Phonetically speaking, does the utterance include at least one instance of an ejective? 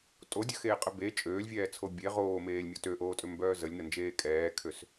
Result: yes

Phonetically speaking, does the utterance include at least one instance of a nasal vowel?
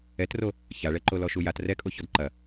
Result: no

